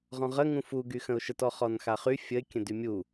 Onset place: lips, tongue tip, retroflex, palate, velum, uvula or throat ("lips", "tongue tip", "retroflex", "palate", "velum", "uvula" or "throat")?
uvula